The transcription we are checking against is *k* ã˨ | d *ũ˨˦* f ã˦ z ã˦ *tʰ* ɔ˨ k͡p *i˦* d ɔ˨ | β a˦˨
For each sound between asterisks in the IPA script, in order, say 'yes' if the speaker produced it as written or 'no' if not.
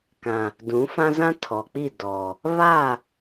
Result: yes, yes, yes, no

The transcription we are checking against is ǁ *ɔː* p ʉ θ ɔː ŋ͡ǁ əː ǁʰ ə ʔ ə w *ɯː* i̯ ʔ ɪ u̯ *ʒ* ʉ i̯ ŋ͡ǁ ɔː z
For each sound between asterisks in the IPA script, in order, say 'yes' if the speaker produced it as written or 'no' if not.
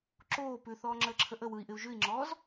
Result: no, no, yes

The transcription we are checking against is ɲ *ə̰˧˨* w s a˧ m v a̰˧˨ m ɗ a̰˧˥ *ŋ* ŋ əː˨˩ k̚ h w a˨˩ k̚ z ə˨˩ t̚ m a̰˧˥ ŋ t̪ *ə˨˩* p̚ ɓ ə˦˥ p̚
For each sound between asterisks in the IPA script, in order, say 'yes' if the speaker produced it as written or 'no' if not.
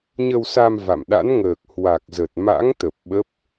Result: no, no, yes

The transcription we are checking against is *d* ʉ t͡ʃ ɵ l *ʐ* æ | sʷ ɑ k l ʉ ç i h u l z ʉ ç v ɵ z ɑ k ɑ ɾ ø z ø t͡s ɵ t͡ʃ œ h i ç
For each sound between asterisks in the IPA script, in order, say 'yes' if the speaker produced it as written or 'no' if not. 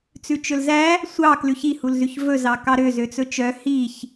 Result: no, no

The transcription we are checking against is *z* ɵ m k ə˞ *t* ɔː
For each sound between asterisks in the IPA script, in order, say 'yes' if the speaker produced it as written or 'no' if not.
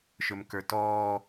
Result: no, yes

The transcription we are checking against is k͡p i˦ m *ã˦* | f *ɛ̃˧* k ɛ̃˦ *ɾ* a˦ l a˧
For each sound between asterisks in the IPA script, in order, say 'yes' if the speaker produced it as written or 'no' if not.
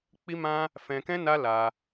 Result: yes, yes, no

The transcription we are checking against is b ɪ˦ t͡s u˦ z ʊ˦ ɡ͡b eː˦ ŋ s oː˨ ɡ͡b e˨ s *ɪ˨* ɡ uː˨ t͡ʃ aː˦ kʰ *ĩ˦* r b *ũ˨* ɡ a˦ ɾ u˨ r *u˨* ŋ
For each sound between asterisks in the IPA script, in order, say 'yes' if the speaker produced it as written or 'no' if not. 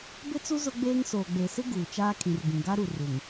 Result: no, no, yes, yes

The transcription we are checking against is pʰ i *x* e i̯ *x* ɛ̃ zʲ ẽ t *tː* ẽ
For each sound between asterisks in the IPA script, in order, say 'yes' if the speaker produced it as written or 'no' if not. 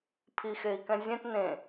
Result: yes, no, no

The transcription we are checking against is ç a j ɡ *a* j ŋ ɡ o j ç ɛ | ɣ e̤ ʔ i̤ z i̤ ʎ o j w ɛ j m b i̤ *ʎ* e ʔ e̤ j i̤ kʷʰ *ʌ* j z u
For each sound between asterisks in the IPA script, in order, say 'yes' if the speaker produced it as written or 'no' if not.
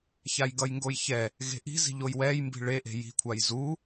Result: no, no, no

